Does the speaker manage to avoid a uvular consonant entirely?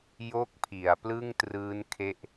yes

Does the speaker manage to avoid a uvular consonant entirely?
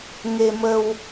yes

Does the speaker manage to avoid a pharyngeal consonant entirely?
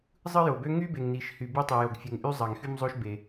yes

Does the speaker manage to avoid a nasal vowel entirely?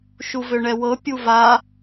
yes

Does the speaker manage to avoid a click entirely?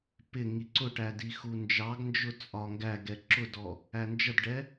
no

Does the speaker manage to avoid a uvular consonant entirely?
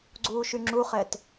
no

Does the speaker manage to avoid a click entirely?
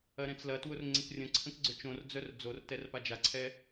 no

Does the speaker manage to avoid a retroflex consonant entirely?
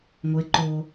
yes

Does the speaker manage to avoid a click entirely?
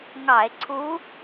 no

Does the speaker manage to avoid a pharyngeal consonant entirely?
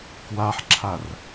no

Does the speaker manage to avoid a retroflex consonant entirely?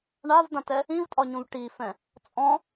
no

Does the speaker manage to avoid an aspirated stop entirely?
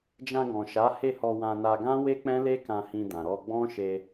yes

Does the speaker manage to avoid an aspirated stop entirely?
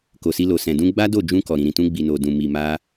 yes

